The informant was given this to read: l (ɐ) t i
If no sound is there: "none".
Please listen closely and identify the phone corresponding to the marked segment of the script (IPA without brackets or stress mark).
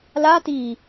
a